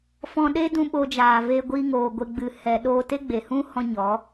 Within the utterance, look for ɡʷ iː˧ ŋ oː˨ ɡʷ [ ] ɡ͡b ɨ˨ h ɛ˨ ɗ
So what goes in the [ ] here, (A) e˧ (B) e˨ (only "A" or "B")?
A